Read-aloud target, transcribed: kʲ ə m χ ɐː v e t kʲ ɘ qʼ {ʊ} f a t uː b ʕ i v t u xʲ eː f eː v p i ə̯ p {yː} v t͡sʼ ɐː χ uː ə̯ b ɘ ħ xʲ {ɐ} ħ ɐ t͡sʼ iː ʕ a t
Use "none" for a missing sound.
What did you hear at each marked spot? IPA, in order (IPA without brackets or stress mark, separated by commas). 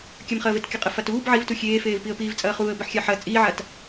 ə, iː, a